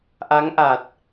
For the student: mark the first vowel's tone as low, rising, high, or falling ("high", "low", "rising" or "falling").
rising